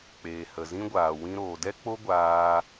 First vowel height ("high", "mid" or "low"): mid